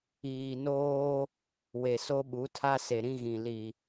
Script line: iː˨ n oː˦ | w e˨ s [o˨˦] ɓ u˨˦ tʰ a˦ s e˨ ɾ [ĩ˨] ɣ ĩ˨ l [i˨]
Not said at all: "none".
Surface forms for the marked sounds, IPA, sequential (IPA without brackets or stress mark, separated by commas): o˦, ĩ˦, i˨